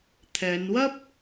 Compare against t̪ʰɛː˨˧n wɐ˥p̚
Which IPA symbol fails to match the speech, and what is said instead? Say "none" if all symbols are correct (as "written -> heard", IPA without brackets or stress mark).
none